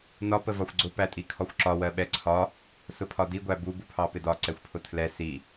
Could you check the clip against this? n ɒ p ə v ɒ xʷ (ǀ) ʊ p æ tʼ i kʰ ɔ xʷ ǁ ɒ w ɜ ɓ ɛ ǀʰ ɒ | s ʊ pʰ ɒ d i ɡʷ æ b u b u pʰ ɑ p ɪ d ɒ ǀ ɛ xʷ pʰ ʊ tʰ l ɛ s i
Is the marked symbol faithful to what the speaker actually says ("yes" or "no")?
no